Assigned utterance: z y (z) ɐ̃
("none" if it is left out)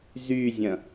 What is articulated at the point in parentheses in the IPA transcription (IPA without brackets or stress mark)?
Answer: zʲ